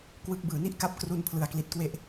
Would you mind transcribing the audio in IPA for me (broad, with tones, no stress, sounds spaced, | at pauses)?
k w ɯ˦˥ k̚ b ɯː˨˩ n i˥˩ ʔ k a˥˩ p̚ k r u˧ n pʰ l ɯ˨˩ a̯ k l i˨˩ t̚ k w e˦˥ ʔ